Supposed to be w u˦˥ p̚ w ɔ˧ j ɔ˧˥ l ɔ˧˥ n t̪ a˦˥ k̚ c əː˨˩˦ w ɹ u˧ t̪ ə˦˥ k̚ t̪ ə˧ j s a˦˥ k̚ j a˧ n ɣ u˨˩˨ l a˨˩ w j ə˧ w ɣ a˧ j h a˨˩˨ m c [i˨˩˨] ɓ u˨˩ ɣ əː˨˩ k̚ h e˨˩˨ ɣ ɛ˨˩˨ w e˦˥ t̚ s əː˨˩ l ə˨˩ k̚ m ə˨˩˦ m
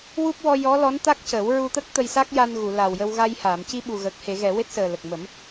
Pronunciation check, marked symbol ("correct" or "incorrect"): incorrect